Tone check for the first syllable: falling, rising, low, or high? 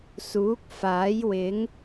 rising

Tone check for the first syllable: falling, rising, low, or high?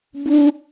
high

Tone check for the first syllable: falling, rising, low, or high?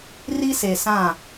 high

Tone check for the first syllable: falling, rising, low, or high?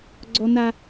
high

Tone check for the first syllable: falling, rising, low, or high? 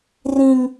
high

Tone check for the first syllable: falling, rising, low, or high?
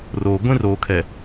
low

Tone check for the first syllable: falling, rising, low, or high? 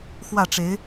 falling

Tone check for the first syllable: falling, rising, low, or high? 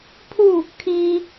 falling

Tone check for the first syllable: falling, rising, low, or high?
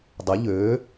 rising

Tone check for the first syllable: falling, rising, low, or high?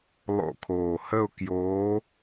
falling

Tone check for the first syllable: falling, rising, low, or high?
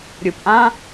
low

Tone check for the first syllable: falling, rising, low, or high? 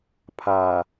low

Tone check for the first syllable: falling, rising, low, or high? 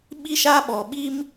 high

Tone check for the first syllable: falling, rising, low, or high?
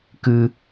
high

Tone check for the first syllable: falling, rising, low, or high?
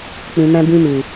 low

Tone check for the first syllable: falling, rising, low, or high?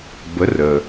rising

